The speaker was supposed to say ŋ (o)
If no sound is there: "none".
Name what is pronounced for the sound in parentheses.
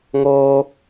o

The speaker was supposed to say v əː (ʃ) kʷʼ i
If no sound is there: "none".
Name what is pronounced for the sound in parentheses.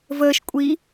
ʃ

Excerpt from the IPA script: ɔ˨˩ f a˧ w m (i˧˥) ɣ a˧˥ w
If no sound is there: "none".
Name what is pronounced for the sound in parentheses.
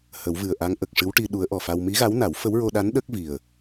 i˧˥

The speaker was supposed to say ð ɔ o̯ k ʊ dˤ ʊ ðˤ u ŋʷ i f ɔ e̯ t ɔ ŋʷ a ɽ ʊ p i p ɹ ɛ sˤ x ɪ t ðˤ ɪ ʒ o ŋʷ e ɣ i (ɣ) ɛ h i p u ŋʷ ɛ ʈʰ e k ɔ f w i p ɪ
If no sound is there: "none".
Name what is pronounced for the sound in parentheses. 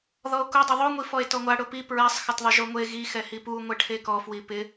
x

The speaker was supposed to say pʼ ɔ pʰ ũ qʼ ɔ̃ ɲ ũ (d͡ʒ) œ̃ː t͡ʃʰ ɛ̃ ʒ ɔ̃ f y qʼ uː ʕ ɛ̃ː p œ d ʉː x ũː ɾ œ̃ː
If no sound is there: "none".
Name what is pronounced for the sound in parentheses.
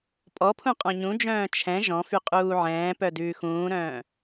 d͡ʒ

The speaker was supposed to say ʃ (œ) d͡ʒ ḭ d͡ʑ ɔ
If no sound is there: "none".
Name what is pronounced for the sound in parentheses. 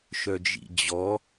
œ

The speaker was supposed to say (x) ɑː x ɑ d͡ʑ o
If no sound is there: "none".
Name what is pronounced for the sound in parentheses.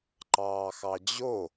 ǃ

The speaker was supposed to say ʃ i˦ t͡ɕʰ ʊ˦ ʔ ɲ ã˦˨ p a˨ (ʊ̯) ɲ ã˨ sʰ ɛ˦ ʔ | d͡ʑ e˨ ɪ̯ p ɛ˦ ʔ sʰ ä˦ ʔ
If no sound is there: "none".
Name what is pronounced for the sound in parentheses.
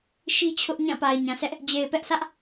ɪ̯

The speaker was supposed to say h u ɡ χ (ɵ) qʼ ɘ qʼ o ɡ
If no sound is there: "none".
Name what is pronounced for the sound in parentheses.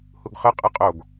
ə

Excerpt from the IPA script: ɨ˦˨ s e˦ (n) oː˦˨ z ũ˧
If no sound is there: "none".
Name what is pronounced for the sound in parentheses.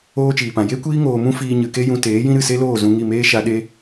l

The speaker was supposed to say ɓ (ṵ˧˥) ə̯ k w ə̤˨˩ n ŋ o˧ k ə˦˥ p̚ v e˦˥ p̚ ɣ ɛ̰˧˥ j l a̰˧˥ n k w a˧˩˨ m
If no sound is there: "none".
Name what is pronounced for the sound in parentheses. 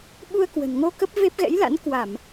u˧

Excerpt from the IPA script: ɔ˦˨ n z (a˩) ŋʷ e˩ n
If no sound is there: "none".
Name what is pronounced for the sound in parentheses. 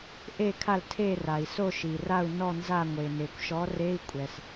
a˦˨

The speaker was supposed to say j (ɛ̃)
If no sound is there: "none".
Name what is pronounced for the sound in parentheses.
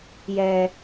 ɛ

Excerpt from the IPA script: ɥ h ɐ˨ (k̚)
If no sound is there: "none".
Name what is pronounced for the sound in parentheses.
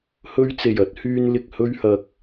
k̚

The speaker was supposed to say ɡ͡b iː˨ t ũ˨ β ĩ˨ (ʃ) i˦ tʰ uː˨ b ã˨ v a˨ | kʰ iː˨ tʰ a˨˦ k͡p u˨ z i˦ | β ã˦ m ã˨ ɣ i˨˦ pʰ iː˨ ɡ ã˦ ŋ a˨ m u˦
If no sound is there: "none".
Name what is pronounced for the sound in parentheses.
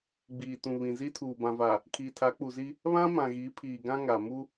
z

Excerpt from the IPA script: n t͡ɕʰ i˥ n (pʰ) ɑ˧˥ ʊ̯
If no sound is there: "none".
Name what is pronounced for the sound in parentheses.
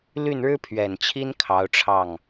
kʰ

